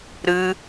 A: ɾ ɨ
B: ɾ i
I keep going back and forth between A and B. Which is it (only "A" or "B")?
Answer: A